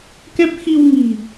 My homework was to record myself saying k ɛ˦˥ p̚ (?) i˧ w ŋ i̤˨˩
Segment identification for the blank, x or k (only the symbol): x